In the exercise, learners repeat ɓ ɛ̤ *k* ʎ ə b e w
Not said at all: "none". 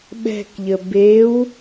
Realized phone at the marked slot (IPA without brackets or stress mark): k